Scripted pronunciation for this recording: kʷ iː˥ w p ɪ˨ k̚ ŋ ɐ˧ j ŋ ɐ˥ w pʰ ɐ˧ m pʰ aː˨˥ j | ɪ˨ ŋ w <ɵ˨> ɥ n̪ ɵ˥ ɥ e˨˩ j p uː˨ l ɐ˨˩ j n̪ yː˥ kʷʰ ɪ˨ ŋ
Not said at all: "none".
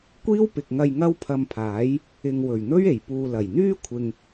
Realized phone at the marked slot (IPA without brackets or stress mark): ɵ˨˩